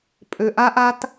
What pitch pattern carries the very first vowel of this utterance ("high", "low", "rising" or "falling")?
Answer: low